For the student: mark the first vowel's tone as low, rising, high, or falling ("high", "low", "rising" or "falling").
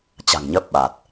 low